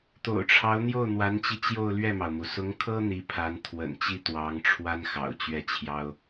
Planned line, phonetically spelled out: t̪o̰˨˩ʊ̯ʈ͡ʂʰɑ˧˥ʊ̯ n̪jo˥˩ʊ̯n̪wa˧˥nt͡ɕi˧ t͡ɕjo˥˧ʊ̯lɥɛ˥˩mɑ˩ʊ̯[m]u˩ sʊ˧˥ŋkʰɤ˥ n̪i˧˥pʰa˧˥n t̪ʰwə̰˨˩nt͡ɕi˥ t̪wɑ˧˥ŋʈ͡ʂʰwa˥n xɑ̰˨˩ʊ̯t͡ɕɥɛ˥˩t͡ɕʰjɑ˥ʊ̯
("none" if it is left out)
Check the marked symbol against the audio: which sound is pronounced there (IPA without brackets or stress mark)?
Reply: m